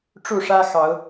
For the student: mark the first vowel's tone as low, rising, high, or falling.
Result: falling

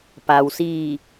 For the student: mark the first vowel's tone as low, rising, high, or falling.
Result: low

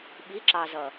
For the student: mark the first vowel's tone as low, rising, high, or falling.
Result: rising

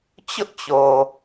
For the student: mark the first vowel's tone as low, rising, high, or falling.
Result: high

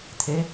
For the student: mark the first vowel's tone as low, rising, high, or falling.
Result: rising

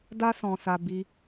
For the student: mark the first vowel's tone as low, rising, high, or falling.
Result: high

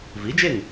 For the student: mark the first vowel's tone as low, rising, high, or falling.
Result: rising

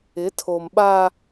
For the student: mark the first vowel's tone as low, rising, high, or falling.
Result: rising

